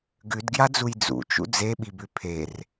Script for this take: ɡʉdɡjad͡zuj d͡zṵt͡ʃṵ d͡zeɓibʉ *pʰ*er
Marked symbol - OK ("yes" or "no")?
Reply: yes